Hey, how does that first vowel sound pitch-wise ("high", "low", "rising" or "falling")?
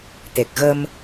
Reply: low